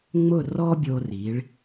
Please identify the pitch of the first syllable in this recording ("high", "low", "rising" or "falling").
falling